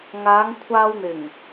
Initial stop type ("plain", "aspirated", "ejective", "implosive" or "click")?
aspirated